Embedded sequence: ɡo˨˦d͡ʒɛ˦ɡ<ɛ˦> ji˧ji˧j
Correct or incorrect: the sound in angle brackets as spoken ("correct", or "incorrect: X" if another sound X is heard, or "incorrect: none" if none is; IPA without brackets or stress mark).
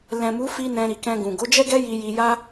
correct